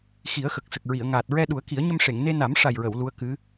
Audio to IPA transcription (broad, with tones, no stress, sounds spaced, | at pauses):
x i˨˩˦ ə̯ x ə˨˩ k̚ s ə˨˩ k̚ ɹ i˨˩˨ ə̯ ŋ aː˨˩ t̚ ɹ ɛ˧ ɗ u˨˩˦ ə̯ k i˨˩˦ ə̯ ɲ ə˧ m ʂ e˨˩˨ ŋ n e˧ n a˨˩˦ m ʂ a˨˩ j ɹ ə˨˩˨ w l u˧˥ ə̯ k ɨ˧˥